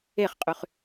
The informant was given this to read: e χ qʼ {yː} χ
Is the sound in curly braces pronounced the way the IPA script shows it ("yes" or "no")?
no